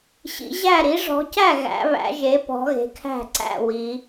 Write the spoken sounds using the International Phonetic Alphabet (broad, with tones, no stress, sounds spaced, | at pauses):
ɕ ḭ˨˦ ʑ æ˥˨ ɾ i˨˦ ʐ ɔ̤˨˦ c æ˥˨ ɣ æ̰˨˦ β æ̰˨˦ ʒ e˨˦ p ɔ̤˨˦ ɣ e̤˨˦ kʰ æ̤˥˨ ǀ æ̰˥˨ w i˨˦